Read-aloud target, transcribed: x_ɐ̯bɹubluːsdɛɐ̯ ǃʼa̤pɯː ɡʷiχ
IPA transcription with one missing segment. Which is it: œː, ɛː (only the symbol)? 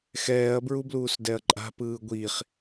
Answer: ɛː